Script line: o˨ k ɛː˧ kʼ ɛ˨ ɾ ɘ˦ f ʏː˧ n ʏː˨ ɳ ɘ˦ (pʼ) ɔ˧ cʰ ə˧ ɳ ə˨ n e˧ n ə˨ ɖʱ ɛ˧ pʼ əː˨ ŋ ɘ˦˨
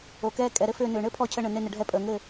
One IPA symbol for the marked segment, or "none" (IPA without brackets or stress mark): pʰ